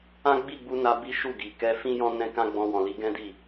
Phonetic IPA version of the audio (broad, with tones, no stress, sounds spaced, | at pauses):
ã˦ ɡ͡b i˦˨ ɡ͡b u˧ n a˧ b i˦ ʃ u˦˨ ɡ i˨ k ɛ˧ f ĩ˦ j ɔ̃˦ n ɛ̃˦ k ã˦ ɡ͡b ɔ̃˧ w ɔ̃˨ l i˧ ɡ ɛ̃˦ d i˦˨